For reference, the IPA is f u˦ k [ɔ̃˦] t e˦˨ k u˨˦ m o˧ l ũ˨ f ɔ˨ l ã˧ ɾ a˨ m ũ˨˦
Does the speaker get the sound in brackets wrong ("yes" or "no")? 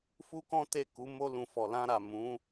no